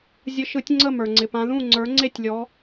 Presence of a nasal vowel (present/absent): present